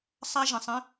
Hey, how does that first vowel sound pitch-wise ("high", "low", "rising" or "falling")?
high